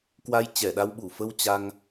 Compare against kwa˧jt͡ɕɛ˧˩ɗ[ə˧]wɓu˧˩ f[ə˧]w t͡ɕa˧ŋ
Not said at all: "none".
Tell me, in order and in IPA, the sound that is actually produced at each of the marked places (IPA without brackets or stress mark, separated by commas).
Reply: a˧, ə˧